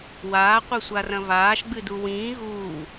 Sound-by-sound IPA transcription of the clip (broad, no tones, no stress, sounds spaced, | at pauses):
w aː qʷ e sʷ a r ɐ̃ v aː ʃ ɡ͡b ɨ d u w ĩː ɣ uː